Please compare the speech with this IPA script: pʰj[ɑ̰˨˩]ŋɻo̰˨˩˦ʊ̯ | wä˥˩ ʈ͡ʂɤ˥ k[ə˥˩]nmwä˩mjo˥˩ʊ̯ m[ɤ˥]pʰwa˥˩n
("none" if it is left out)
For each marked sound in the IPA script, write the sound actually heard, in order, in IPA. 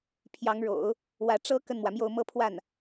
ɑ˧˥, ə˥˩, ɤ˥

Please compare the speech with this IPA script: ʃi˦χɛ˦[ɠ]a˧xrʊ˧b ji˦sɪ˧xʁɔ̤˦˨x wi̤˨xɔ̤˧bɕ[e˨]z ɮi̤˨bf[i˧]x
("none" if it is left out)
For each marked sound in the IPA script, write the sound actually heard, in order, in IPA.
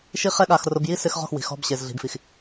ɠ, e˨, i˨

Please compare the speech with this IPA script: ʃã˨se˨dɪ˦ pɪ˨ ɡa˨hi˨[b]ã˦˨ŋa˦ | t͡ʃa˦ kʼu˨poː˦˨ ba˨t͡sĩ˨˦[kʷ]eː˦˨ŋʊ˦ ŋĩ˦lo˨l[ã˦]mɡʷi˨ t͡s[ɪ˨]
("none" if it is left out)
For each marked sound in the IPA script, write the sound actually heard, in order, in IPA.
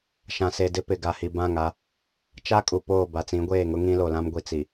b, ɡʷ, ã˦, i˨

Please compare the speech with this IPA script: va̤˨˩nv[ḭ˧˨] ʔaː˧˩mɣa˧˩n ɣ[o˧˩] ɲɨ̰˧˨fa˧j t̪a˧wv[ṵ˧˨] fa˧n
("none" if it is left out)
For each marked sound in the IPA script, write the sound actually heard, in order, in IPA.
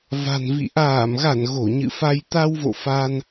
ḭ˧˨, o˧˩, o̰˧˨

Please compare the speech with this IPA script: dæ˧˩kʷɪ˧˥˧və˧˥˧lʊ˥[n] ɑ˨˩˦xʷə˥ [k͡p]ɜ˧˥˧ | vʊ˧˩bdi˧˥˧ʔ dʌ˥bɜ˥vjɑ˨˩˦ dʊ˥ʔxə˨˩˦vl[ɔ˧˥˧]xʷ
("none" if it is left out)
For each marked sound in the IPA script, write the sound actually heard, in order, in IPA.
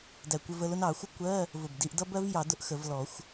n, kʷ, ɔ˨˩˦

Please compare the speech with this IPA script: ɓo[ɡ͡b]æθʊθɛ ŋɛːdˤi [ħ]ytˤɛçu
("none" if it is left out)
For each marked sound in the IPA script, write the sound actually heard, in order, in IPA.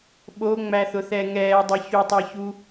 ŋ͡m, ç

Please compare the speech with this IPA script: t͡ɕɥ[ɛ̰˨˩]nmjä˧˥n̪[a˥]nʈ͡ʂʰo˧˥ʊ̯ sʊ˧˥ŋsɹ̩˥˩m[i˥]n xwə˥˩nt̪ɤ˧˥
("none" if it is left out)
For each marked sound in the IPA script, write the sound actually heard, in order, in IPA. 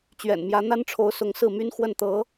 ɛ̰˨˩, a˥, y˥

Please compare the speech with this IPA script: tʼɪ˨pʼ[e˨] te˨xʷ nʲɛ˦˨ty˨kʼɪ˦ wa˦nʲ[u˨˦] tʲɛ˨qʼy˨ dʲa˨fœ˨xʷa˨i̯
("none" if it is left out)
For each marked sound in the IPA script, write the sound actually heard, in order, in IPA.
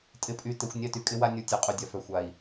y˨, u˨˦

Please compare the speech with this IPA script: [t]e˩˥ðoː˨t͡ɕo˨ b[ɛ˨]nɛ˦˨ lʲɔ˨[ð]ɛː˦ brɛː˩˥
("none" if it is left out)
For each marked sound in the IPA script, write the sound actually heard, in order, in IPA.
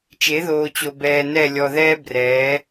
t͡ʃ, ɛː˨, ð

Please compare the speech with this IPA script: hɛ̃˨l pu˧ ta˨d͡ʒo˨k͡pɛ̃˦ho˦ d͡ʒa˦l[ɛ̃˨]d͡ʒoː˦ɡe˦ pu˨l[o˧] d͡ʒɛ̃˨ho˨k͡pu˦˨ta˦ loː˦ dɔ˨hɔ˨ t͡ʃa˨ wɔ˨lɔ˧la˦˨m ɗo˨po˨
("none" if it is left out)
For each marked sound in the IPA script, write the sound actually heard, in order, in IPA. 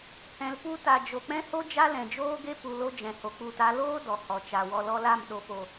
ɛ̃˨, o˧

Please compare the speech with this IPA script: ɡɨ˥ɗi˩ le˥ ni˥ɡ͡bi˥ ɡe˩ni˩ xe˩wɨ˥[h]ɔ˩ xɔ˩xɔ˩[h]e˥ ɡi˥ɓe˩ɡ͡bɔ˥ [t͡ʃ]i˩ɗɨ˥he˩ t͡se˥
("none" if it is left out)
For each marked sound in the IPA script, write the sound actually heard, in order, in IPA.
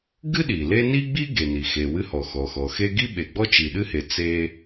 h, x, t͡ʃ

